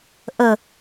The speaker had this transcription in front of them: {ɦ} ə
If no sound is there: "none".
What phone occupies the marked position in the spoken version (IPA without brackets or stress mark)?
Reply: ʔ